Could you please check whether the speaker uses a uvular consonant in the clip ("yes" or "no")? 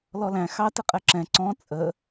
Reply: yes